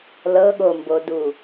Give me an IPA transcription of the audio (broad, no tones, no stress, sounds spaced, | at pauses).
l ɤ ɠ o m b o d u